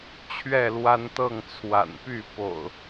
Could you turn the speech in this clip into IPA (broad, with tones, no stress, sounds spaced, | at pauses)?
t͡ɕʰ ɥ ɛ˥˨ l w a˦ n t̪ ɤ˥˨ ŋ t͡sʰ w a̰˨˩ n p y˥˨ p o̰˨˩ ʊ̯